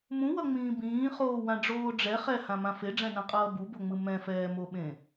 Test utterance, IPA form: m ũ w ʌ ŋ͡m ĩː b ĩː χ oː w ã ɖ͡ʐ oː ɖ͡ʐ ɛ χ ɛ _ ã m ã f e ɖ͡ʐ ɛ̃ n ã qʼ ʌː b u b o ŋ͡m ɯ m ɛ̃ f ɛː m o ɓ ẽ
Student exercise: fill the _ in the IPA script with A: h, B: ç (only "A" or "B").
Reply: A